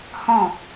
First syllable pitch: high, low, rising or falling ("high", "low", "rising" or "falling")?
falling